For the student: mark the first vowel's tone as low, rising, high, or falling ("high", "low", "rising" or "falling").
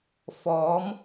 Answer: rising